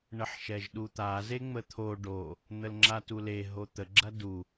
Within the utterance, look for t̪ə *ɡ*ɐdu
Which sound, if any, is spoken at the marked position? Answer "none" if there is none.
ɡ͡ǁ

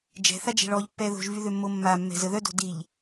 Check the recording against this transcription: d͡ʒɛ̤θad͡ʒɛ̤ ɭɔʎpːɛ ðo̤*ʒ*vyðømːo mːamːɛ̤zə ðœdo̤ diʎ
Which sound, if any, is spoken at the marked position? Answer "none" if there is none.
ʒ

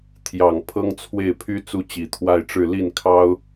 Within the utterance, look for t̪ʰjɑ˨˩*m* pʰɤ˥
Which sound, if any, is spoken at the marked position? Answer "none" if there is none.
ŋ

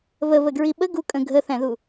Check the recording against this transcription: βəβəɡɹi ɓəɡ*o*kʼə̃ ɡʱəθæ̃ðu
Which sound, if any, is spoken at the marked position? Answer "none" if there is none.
u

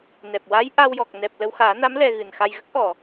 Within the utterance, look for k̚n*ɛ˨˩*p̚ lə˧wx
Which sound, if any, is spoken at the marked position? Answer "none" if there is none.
ɛ˨˩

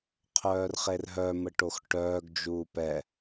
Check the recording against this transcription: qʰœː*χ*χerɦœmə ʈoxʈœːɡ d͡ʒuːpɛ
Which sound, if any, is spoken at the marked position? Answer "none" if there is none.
r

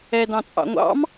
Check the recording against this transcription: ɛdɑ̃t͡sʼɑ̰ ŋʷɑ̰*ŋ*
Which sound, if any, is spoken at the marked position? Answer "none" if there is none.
m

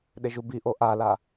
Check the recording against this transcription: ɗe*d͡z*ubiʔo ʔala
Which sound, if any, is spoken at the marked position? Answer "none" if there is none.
ʒ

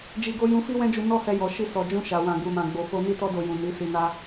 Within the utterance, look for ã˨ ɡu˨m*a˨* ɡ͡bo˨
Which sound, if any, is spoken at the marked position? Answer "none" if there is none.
ã˨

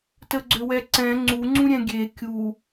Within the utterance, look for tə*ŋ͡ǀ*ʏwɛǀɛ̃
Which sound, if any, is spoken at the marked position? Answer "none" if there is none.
ɡ͡ǀ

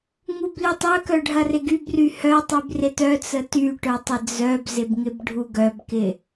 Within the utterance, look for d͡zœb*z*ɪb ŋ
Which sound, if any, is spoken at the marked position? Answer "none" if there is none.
z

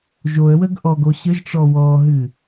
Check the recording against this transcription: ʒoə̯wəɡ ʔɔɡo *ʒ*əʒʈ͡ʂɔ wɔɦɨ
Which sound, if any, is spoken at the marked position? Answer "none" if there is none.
ɕ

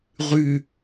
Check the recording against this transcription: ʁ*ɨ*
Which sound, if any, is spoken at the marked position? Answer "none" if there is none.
y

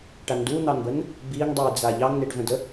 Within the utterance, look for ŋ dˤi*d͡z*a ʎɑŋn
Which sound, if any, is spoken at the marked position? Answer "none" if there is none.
d͡z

